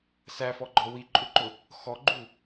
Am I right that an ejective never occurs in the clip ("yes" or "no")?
no